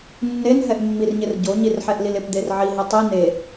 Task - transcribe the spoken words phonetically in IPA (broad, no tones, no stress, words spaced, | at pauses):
nːenɦɛʔmːirɲɪr ɟoɲirħɛʔlil ɪpd̪er ʕiɦe tˤi ne